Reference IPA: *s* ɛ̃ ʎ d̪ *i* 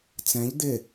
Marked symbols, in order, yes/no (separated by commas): no, no